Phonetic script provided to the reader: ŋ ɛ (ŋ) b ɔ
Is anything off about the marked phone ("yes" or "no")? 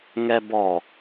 yes